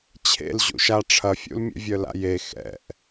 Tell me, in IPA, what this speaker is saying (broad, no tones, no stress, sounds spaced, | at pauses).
t͡ɕʰ ḛ l ʑ ṵ ʃ a ʈ͡ʂʰ ɐ fʲ ṵ l mʲ ḛ vʲ œ l a̰ j e x ɛ̰ ʔ